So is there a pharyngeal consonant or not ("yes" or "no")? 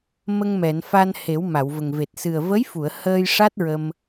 no